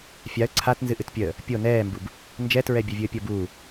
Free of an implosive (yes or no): yes